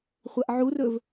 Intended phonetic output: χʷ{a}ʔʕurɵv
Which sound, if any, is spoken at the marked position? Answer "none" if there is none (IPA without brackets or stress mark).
a